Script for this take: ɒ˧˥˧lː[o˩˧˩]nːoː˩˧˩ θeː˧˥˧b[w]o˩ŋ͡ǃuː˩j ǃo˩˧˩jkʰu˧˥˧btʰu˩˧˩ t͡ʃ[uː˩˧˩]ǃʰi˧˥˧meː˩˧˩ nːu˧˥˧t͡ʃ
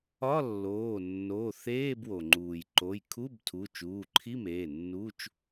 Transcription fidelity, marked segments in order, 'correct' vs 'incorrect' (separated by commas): incorrect, correct, correct